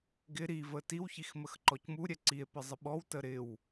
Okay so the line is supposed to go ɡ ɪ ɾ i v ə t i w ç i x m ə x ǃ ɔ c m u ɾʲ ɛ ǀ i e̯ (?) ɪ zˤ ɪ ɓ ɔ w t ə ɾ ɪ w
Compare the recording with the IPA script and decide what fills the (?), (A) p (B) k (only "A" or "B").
A